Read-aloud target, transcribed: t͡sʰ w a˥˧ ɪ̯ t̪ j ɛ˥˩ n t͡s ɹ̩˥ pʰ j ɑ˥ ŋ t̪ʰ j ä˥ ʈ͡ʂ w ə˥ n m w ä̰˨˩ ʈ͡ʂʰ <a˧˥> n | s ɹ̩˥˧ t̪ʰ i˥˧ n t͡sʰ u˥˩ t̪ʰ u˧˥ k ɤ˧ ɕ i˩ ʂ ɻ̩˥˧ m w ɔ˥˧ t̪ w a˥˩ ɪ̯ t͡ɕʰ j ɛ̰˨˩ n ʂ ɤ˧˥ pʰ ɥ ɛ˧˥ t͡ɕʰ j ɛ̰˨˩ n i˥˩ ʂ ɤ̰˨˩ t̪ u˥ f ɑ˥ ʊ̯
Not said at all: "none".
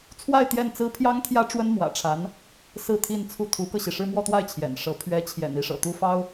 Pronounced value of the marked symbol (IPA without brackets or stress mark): a˧˥